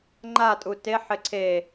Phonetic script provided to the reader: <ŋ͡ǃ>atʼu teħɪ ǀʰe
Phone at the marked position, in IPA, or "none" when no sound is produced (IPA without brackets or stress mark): ŋ͡ǃ